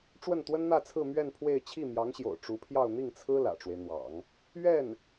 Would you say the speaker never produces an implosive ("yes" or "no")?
yes